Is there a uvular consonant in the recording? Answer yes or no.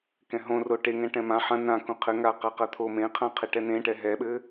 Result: yes